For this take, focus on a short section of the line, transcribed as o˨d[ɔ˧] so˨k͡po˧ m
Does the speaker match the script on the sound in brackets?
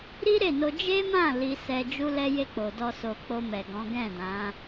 yes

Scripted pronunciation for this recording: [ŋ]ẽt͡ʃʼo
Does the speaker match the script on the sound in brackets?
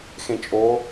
no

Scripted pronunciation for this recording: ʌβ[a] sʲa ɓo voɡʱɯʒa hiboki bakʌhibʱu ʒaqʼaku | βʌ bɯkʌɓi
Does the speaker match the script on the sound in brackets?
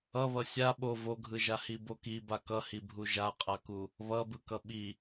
no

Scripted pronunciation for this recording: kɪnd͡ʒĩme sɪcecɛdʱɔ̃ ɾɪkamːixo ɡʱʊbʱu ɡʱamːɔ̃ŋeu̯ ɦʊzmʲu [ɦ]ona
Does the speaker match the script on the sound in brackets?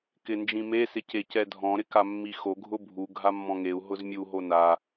yes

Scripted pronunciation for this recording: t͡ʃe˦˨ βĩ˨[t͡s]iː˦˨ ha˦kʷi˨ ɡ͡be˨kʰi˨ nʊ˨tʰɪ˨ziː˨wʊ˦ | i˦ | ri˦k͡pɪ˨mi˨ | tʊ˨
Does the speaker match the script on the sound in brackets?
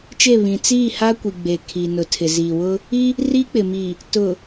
yes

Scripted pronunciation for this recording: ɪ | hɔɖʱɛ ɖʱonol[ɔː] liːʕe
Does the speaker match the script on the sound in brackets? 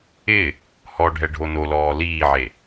yes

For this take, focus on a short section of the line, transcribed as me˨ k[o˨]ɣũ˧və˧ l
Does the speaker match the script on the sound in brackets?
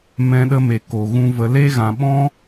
yes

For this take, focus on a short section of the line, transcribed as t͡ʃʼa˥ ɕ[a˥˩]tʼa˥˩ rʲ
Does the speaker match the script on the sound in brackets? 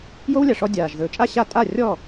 no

